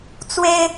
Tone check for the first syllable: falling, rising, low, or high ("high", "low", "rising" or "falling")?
high